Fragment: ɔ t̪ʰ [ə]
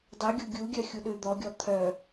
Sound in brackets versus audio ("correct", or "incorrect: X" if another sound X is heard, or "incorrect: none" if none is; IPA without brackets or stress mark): incorrect: œ